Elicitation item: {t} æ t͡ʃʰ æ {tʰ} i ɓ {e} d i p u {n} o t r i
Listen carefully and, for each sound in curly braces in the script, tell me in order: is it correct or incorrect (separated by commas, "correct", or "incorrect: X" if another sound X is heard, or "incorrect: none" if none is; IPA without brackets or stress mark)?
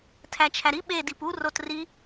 incorrect: tʰ, incorrect: ɾ, correct, incorrect: r